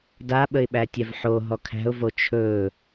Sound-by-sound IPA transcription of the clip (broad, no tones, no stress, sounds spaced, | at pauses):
d a ɓ ə ɪ̯ ɓ æ tʲ ɛ v ħ o ɦ ɔ kʰ æ̤ ʊ̯ v o t͡ʃʰ ɵː